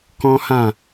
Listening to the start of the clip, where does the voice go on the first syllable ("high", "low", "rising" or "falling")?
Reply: high